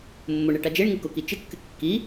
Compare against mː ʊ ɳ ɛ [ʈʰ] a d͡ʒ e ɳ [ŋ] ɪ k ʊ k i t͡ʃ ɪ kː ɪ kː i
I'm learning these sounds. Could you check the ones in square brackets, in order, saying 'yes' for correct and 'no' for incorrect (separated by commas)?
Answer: no, yes